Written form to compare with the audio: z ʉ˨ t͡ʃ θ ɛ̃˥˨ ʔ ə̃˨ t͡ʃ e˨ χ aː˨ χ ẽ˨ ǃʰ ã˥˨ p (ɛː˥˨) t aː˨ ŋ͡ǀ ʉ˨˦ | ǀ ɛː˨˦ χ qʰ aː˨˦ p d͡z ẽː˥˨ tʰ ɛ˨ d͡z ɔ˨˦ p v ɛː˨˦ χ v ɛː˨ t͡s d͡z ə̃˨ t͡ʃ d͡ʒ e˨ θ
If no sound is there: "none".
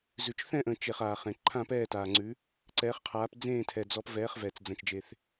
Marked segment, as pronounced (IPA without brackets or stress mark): ɛː˥˨